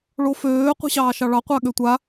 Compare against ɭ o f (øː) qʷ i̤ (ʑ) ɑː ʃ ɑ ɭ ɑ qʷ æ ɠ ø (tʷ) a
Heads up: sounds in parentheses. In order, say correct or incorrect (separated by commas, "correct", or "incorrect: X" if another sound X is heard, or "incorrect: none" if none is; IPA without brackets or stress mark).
correct, incorrect: ɕ, correct